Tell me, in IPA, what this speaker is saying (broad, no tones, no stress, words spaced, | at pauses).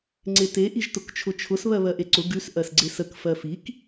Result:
ŋ͡ǀete ʔiʒtʊkt͡ʃʰʊt͡ʃʰʊs βɜβɜʔeǀʊ ɡʉs ʔɜsɡ͡ǀesək fɜfik